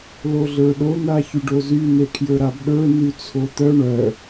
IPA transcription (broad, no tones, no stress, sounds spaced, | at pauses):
l o ɮ ə˞ ɗ o n̪ a ç y ɖ o z y n e kʰ j ə˞ ɾ a b ɗ ə˞ n y t͡sʰ o t̪ œ ɳ œ